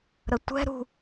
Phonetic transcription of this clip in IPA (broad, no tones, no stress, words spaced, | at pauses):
ɾətʷɛ̤ ɾṳ